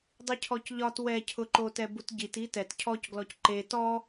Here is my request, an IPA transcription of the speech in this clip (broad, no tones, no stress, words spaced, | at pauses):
dˤicʰɔcʎɒt wɛcʰʊǃotɛ butɟit itɛt cʰɔcɡlɔc ǃe tɔ